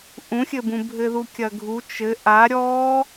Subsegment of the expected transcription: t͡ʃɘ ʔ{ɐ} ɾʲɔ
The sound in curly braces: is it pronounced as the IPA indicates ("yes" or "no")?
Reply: no